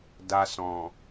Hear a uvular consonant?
no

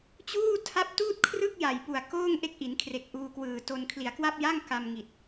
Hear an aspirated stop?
yes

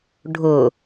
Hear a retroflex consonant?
yes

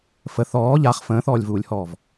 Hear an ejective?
no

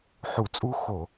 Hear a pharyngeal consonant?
yes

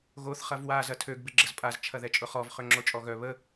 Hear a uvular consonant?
yes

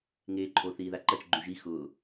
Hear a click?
yes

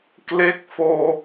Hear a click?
no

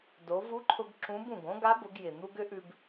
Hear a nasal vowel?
yes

